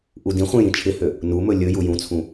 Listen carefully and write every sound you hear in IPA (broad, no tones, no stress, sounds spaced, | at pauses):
ʔ u d ĩ χʷ ĩ j ĩ t͡ʃʰ ɪ h ø | n u m ɵ lʲ ɵ j u j ũ t͡sʰ ũ